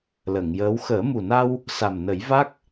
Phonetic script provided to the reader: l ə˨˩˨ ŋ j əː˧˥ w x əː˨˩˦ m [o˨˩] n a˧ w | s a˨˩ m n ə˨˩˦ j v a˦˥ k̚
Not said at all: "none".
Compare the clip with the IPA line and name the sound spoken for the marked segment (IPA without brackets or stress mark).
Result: u˨˩